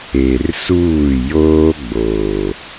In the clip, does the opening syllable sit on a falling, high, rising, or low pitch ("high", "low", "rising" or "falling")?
low